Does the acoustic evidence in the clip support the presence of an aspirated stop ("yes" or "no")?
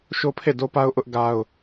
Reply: yes